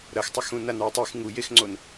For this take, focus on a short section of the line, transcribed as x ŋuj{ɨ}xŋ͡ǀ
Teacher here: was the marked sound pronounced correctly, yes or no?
no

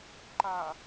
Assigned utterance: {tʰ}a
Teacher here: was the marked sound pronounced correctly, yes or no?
no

